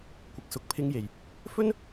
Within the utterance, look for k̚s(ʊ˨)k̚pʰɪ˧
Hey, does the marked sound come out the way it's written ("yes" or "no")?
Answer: yes